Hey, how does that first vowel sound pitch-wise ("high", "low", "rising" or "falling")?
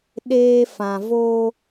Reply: high